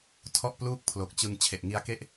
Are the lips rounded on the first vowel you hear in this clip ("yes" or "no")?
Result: yes